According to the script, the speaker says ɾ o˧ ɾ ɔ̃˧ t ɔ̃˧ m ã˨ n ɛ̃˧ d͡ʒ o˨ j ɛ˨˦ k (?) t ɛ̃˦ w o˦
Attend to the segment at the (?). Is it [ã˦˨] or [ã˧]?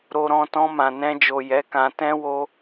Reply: ã˧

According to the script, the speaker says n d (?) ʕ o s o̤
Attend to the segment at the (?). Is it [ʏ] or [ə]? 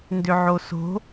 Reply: ʏ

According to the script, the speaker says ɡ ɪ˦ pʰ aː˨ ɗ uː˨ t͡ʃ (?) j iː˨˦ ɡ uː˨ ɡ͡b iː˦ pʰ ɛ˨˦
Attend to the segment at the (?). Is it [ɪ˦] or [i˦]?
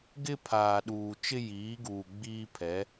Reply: ɪ˦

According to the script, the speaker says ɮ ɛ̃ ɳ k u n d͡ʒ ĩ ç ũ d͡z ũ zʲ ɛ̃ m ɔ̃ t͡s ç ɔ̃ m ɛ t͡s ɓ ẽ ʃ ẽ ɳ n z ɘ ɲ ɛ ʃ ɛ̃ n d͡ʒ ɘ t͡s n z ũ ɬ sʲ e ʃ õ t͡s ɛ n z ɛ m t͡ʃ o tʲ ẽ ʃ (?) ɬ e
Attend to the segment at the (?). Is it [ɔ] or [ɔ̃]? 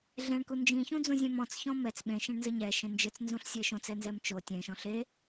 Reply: ɔ̃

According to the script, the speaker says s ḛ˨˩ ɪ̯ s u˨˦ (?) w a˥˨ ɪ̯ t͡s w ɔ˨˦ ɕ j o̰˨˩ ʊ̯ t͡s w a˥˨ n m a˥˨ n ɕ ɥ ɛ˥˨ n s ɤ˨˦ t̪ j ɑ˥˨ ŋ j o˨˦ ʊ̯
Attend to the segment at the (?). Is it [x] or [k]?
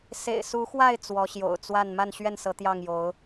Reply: x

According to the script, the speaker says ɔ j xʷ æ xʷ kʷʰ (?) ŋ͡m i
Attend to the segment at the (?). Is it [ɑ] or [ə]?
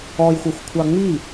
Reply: ɑ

